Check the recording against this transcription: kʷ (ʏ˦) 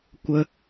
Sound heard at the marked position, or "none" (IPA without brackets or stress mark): ə˦